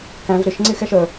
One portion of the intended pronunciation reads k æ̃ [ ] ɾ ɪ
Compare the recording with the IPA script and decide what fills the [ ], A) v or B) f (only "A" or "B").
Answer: A